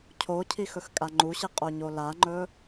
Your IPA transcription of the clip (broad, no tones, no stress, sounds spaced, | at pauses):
cʰ o cʰ i x ɵ x kʼ a ŋ͡ǃ u ɕ i qʼ o ɲ o l a ŋ͡ǃ ɵ